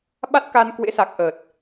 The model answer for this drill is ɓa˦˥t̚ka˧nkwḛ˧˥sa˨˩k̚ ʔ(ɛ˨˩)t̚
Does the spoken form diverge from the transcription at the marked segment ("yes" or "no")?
yes